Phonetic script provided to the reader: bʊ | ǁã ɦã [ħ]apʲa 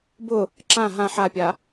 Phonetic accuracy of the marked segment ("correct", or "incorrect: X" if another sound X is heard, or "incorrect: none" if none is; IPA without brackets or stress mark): correct